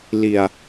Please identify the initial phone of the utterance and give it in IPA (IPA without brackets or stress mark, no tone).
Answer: l